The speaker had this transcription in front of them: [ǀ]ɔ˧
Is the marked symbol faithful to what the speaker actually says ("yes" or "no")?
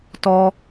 no